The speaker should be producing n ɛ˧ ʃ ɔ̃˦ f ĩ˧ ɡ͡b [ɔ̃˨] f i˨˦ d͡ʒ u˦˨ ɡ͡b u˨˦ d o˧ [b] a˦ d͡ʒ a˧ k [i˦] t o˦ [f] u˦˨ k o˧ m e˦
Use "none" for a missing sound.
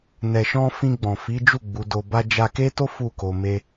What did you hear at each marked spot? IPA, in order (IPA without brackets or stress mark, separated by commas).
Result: ɔ̃˨, b, e˦, f